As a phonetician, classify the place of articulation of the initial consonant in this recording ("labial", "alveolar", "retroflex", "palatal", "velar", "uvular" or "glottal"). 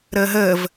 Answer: alveolar